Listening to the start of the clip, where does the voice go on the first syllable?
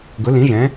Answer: rising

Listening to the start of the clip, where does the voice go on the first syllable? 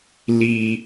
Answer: high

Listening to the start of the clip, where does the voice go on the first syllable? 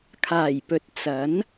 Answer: low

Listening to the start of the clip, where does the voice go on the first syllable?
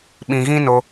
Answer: low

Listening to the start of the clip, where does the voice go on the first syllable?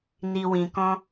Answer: low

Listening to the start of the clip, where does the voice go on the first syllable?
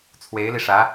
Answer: rising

